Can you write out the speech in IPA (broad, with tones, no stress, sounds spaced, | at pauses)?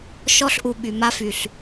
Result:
ʃ ɔ˦ ɬ ʔ u˨ ɓ y˨ m a˦ f y˨ ɬ